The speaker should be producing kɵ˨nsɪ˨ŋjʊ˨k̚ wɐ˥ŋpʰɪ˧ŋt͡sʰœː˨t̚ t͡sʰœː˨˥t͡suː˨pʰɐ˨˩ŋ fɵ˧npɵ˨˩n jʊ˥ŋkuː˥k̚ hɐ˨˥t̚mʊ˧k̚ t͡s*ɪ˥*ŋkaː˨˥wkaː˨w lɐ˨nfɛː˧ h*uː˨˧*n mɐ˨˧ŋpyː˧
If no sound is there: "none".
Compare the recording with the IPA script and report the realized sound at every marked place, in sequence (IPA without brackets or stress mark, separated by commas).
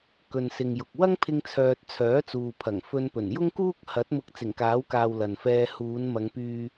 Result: ɪ˨˩, uː˨˧